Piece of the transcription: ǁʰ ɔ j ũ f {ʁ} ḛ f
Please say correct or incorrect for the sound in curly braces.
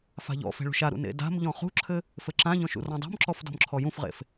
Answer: correct